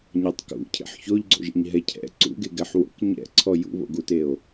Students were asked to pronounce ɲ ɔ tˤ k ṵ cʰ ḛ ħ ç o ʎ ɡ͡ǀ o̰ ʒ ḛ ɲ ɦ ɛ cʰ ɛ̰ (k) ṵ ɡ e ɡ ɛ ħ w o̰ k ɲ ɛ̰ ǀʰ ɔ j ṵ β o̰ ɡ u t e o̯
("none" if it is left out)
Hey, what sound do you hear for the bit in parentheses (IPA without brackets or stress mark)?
ǀ